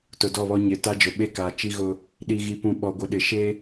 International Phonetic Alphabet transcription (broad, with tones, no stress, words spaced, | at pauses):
tʊ˨dɔ˦˨βɔ˦ ɲɪ˨ ta˦d͡ʒʊ˨ɓe˦kaː˨ t͡ʃi˦ɣʊ˦ | ɗi˨ɣi˨pũ˨ ɓɔ˨ɡʷɪ˨ ɗɪ˨ ʃe˦